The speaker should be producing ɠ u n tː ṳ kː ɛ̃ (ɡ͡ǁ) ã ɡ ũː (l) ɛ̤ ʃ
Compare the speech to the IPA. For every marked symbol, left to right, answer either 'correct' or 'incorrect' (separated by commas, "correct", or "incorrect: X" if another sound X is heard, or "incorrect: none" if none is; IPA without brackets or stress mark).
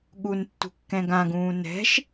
incorrect: ɡ, incorrect: n